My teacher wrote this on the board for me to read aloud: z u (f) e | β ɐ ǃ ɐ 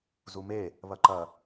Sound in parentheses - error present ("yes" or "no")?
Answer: yes